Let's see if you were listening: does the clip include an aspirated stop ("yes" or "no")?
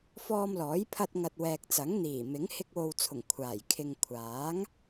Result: yes